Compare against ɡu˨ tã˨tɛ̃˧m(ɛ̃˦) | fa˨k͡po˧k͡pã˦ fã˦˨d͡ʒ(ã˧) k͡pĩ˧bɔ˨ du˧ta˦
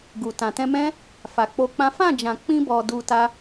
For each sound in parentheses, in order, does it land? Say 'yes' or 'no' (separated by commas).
yes, no